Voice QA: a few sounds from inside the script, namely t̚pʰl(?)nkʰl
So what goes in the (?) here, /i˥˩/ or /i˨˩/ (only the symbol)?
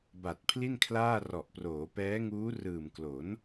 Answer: i˥˩